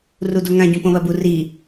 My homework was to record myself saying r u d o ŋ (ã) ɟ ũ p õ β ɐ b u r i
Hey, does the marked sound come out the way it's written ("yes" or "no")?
yes